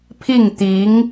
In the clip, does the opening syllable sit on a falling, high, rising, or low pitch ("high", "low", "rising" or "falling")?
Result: falling